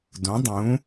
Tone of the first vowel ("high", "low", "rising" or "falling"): rising